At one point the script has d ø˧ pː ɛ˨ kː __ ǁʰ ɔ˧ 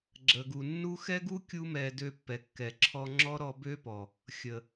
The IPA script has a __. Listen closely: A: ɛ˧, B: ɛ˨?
B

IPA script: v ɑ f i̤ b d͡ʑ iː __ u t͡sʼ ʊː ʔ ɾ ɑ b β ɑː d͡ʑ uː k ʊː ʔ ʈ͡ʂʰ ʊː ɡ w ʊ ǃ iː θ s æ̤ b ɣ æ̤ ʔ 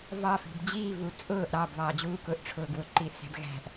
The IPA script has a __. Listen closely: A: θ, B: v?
B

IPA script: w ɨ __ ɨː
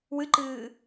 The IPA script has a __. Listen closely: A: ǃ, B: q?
A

